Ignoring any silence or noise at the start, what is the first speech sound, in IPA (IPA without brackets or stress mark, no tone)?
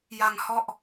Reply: j